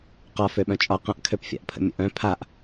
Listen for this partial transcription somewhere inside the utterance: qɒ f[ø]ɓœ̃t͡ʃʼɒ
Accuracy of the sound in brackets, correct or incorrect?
correct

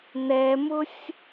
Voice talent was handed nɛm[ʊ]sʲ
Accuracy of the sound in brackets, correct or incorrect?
correct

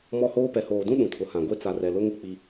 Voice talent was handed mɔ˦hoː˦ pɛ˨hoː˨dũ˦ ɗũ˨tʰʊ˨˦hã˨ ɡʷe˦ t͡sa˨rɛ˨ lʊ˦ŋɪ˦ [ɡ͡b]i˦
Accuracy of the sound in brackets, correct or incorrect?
incorrect: k͡p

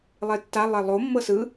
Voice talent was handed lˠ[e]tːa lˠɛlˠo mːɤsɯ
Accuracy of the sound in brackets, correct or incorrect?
correct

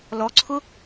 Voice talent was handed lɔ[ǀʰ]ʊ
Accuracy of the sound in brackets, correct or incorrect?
correct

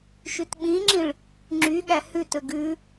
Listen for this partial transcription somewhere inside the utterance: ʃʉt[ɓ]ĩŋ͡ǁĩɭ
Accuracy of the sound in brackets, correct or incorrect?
correct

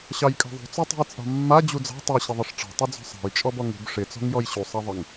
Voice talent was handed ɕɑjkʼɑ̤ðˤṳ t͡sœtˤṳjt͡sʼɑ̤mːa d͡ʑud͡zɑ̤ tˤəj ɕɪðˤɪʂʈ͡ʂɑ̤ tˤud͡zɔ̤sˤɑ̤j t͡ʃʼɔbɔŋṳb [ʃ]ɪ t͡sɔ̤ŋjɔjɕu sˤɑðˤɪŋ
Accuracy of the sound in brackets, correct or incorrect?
incorrect: ʂ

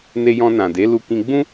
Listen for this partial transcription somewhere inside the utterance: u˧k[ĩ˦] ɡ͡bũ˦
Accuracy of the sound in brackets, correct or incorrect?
incorrect: ĩ˧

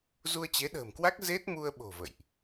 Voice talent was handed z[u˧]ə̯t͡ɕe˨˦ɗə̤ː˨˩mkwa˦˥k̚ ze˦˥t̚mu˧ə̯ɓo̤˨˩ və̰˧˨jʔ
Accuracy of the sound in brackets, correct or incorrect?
correct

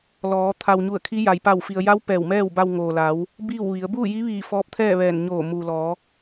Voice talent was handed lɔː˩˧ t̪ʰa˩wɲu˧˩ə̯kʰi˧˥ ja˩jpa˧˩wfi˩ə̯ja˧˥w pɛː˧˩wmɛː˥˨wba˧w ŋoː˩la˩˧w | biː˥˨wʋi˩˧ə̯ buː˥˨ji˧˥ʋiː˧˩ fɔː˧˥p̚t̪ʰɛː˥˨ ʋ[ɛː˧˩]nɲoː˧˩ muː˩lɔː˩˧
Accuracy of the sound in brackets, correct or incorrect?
correct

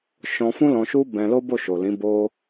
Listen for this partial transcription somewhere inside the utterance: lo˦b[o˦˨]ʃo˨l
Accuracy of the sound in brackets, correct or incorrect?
correct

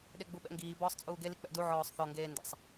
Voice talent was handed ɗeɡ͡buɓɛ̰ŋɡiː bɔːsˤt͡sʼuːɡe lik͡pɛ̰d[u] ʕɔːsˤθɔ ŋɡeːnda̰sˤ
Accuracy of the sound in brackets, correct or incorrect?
correct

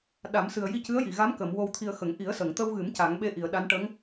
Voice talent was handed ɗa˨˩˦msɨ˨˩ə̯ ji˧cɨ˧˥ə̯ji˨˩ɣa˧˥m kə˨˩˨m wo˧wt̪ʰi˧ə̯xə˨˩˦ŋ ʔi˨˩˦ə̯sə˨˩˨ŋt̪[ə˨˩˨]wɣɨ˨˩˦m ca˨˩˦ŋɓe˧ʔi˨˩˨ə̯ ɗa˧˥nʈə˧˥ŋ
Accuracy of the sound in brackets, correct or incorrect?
incorrect: ə˧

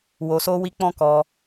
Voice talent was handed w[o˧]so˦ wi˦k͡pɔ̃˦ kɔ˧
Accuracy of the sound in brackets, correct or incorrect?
correct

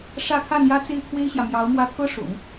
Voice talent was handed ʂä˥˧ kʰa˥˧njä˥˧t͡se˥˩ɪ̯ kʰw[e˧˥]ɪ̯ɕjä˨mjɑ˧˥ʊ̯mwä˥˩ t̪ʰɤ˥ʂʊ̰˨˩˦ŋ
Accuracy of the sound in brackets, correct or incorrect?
incorrect: e˥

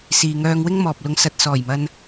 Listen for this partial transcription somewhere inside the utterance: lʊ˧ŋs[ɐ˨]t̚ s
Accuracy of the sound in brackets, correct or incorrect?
incorrect: ɐ˧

